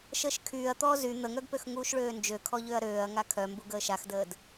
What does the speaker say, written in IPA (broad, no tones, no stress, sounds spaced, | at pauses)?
ʃ əː ʃ kʰ yː ɐ̯ t̪ ɔː z y n̪ ə ŋ œ ɡ p ø x ŋ uː ʃ ɭ øː n d͡ʒ ø kʰ ɔ ʎ ø ɐ̯ ɾ øː ɐ̯ ŋ a kʰ œ m b u ɡ əː ʃ a x d əː d